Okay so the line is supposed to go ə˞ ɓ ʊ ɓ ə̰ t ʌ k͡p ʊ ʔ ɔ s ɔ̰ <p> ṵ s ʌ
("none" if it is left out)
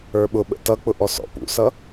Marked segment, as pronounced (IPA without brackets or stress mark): p